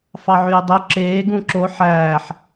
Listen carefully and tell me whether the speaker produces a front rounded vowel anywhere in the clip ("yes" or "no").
yes